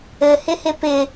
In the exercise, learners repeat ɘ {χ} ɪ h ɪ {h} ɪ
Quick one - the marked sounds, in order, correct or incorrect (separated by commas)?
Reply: incorrect, incorrect